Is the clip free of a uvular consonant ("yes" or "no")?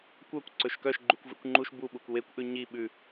yes